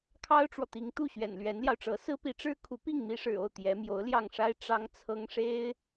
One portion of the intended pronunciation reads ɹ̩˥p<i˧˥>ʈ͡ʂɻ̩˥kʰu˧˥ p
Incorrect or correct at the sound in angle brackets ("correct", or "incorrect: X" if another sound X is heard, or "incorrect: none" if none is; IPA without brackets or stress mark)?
correct